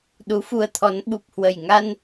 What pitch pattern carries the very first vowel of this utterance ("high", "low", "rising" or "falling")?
rising